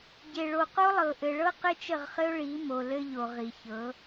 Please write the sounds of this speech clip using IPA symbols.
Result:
ɟ e˨ ɭ o˨ q o˦ lˠ ɤ˨ ʔ ɘ˨ ɭ ɤ˦ q ɘ˦ t͡ʃ ə˦˨ ʁ χ ɘ˦ ʊ̯ ɭ i˨˦ m o˨ l ɘ˦ ʎ o˨ ʁ i˨ ç ɤ˨˦

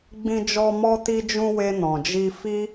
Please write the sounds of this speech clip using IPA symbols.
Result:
ɡ͡b ĩ˧ d͡ʒ ɔ˧ m ɔ˧ t i˧ d͡ʒ ũ˧ w e˧ n ɔ̃˨ d͡ʒ i˧ f i˦

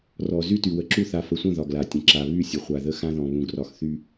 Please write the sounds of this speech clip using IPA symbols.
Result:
r ɔ˨ z y˦ t y˨ w ə˨ ǁ u˦˨ θ a˨ f ə˨ sʷ ə̃˦˨ ð ɒ˨ ɡ l a˨ tʲ ə̃˨ ǁ a˨ β y˦˨ sʲ ə˨ χʷ a˨ ð ə˦ x ã˦ ð ɔ̃˨ β ũ˨ ɡ r ɒ˨ x θ y˦

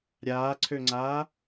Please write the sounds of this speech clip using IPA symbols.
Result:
ɾʲ aː ǀʰ ø ŋ͡ǀ aː

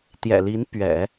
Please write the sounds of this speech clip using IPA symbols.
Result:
t̪ j ɛ̰˨˩ l i˧˥ n p ɥ ɛ̰˨˩˦

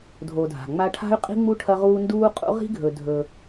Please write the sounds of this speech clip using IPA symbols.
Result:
dʱ o˨ dʱ a̤˩ ŋ͡m a˦ ʈʰ a̤˥ y̯ qʼ i̤˥ ŋ͡m u˥ ʈʰ ɐ˦ ʁ uː˦ n d uː˦ qʼ ṵ˦ ʁ i̤˥ ɡʱ ɵ˨ dʱ ɵ˨

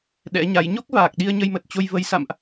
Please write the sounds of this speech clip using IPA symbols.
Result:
ɗ ɛ̰˧˥ ɲ a˨˦ j ɲ o˦˥ k̚ v aː˨˩ k̚ ɗ i˧ ə̯ ɲ ə˧ j m ə˨˩ t̚ t͡ɕ o˧ j v ə˨˦ j s a̰˧˨ m ʔ

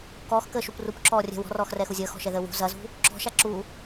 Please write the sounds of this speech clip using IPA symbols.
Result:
k ɔː x k əː ʃ u p r u p ǁ ɔː rʲ ɛ̤ w ɔ̤ r ɔː x r ɛ x u zʲ əː x ɔ̤ ʃ ɛ ð əː w ṳ z ɐ z ṳ | ǁ ɔ̤ ʃ a ǁ u

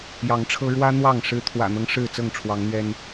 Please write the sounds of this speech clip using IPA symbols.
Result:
j ɑ˨˦ ŋ ʈ͡ʂʰ ɤ˦ ɻ w ä˦ n̪ w ɑ˥˨ ŋ ʂ ɻ̩˦ t̪ʰ w ä̰˨˩ n̪ ɤ˦ ŋ ʂ ɻ̩˥˨ t͡s ɤ˥˨ ŋ ʈ͡ʂʰ w ɑ˨˦ ŋ n̪ ɥ ɛ˦ n

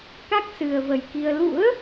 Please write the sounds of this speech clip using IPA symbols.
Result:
k a˦˥ k̚ s ɨ˨˩ ə̯ v ə˨˩ j k i˧ ə̯ l ṵ˧˥ ə̯

